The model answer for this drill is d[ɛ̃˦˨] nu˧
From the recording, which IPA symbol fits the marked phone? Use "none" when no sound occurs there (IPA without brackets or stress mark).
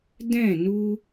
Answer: ɛ̃˦˨